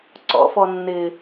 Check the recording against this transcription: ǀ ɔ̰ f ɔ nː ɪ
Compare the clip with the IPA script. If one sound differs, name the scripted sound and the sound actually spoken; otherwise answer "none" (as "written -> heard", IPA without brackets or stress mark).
none